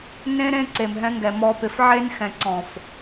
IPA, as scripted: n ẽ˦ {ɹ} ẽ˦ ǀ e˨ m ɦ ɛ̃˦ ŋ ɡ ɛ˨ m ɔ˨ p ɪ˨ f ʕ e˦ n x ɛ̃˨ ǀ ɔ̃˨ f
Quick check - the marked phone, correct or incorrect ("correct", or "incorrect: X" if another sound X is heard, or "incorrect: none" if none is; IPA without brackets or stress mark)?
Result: incorrect: ɾ